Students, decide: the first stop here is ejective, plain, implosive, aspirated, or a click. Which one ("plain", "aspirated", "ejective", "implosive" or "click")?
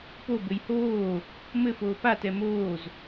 plain